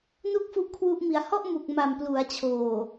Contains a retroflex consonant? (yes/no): no